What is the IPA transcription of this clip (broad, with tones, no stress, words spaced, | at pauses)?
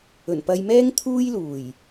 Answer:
ɵ˨˩npɐ˧jmɛː˥ŋ t̪ʰuː˥jluː˨˩j